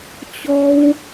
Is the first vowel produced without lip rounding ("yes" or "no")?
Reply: no